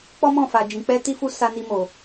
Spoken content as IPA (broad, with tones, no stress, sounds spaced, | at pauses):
k͡p ɔ˦ m ɔ̃˦˨ f a˧ d͡ʒ ĩ˧ k͡p ɛ˦ t i˦ f u˦ s a˦ n i˦ m o˧